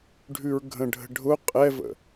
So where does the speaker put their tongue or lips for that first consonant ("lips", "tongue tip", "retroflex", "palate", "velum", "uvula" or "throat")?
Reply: retroflex